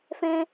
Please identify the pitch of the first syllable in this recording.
high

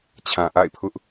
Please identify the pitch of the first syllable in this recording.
low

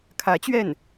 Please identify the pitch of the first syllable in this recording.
rising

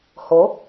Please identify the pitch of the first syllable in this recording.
rising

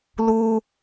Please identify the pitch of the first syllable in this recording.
low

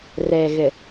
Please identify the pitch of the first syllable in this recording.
low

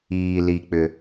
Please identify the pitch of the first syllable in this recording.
low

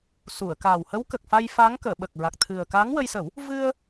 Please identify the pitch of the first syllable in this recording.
low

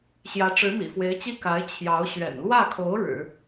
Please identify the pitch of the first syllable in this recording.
rising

